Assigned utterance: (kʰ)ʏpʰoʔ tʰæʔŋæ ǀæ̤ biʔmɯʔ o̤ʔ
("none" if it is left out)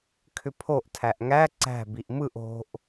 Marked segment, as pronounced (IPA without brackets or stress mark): kʰ